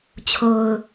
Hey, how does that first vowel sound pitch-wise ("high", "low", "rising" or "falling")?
low